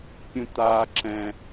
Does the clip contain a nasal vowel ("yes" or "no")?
yes